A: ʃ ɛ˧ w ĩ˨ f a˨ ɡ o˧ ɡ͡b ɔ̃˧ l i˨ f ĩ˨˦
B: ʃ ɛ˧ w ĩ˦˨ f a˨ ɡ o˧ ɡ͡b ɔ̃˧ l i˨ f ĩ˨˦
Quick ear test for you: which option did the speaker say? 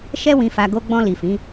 A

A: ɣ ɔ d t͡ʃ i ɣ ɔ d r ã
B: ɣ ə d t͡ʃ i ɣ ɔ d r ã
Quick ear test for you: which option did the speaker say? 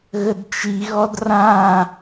B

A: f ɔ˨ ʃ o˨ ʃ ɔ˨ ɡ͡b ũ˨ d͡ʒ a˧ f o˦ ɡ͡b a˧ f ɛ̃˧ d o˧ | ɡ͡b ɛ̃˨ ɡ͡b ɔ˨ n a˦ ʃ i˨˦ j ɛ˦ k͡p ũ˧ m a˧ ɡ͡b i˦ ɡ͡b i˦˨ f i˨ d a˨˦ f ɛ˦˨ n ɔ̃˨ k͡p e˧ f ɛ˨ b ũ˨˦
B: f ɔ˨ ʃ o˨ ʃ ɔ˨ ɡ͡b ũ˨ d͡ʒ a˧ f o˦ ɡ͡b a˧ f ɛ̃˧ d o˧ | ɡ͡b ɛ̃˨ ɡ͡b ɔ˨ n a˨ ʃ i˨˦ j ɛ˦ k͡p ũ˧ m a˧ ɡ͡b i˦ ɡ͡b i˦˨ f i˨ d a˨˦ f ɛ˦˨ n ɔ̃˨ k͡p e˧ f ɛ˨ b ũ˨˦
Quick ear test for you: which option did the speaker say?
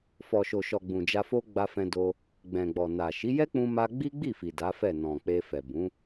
B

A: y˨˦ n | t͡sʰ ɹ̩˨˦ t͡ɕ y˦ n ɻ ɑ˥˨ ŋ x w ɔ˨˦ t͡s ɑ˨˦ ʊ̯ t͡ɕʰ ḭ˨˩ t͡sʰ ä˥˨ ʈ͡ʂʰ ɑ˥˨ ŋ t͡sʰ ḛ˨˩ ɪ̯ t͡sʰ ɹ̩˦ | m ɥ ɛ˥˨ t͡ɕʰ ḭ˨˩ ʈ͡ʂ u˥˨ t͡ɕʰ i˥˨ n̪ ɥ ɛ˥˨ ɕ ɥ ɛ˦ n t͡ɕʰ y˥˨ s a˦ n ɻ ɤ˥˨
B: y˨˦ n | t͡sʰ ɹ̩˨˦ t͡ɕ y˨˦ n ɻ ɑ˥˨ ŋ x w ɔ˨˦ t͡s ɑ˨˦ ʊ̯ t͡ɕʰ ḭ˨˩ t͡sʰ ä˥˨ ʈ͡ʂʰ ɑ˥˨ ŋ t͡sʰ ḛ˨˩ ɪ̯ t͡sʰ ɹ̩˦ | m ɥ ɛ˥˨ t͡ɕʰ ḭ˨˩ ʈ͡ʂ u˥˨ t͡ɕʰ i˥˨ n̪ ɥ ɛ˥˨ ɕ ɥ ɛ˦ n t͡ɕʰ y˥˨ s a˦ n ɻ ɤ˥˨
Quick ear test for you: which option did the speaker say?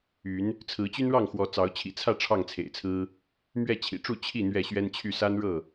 A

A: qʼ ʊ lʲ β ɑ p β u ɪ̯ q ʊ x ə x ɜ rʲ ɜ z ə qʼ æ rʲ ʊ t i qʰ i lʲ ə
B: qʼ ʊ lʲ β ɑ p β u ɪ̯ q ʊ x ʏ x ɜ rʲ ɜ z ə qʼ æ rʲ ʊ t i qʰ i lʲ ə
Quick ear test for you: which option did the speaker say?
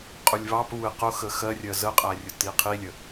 A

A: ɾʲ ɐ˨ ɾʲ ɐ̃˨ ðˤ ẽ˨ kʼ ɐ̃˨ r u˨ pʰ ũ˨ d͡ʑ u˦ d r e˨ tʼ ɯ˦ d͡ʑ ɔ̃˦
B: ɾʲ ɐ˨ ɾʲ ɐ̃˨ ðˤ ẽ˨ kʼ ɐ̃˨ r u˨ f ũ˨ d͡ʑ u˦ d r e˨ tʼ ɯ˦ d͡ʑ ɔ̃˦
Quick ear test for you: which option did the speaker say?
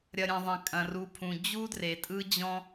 A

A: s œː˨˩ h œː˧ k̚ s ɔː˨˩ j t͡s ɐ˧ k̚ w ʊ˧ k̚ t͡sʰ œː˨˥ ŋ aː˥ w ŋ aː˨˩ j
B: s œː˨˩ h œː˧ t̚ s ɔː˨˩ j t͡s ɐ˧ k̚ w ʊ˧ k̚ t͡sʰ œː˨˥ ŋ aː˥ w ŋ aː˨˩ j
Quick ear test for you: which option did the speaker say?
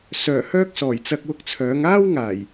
A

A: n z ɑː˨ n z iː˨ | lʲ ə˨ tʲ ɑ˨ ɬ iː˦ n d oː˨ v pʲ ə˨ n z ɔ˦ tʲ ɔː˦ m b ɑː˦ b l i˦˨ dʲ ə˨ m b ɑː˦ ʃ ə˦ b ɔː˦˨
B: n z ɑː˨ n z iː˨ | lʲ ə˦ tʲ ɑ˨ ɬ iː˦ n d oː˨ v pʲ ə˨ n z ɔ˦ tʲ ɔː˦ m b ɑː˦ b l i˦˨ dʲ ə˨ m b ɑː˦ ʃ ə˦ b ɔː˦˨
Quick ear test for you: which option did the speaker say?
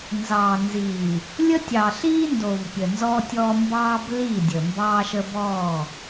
B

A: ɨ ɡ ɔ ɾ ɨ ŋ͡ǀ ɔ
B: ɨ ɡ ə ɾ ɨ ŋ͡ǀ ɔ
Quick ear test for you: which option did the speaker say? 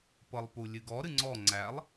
A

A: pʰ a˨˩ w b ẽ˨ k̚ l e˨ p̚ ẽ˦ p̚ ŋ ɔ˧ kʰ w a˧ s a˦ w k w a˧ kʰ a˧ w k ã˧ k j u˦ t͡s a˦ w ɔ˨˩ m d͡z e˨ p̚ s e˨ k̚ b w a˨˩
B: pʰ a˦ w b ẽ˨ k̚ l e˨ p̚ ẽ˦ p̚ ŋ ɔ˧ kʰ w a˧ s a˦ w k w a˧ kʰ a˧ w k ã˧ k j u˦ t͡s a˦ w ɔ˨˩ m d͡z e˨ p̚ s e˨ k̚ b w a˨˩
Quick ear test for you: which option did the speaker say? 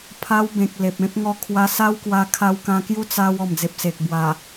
B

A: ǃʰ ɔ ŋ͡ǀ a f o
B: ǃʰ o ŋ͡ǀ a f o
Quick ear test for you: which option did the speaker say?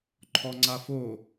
A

